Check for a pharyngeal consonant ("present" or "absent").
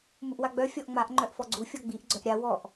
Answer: absent